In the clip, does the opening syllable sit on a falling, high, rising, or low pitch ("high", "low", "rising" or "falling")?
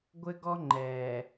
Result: high